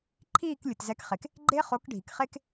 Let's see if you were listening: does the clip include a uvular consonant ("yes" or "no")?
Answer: yes